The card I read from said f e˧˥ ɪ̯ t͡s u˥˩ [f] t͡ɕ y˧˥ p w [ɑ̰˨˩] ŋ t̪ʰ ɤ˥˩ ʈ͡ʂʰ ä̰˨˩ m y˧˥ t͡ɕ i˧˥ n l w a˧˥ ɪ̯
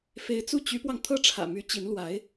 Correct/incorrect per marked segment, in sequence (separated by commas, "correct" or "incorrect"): incorrect, incorrect